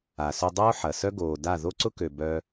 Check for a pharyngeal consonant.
present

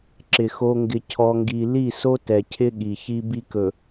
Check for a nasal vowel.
absent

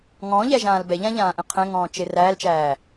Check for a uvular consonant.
present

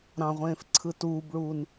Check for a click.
present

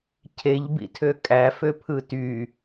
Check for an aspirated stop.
present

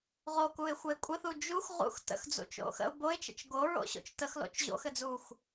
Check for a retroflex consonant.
absent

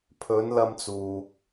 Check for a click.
absent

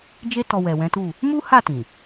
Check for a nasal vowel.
present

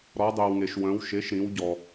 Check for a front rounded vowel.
present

